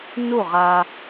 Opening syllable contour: falling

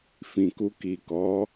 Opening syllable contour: low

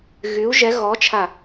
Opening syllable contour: rising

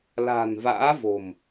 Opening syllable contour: low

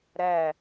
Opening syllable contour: falling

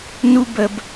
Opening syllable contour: high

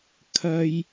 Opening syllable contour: low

